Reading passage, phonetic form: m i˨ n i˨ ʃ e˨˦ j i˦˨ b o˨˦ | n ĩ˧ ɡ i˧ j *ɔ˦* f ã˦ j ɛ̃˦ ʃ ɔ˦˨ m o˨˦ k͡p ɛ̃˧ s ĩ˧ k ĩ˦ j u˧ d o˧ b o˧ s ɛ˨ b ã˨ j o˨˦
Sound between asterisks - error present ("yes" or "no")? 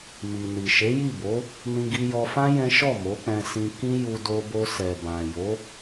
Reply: yes